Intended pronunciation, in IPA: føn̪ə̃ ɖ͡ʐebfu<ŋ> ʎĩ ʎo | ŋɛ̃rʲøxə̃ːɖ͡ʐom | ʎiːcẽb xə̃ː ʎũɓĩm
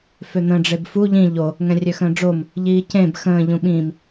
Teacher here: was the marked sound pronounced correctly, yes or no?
no